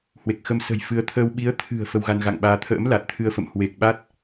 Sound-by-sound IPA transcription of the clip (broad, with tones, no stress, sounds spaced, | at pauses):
h w e˨˩ k̚ x ə˧ m s ə̤˨˩ j f ɨ˨˦ ə̯ t̪ʰ əː˧ w ɓ i˨˦ ə̯ t̪ʰ ɨ̤˨˩ ə̯ f ə˧ w ɣ a˧ n ɣ a̰˧˨ ŋ ɓ aː˧ t̪ʰ ə̰ː˧˥ m l a˨˩ t̚ t̪ʰ ɨ˧ ə̯ f ə̰˧˨ m h w e˨˩ k̚ ɓ a˦˥ t̚